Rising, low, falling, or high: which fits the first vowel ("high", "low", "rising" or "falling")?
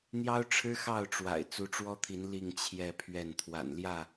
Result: high